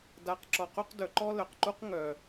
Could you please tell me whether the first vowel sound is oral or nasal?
oral